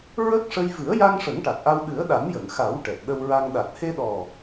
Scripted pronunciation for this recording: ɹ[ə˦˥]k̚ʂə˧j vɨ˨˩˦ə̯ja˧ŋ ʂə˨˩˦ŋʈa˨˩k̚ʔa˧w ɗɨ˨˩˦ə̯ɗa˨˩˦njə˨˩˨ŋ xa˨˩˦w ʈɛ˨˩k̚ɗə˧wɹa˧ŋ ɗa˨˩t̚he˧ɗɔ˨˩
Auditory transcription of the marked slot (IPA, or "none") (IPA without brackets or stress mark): ə˦˥